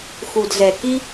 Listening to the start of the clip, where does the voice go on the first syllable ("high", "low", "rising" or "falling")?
low